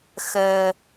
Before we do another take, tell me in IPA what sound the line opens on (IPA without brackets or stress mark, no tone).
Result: x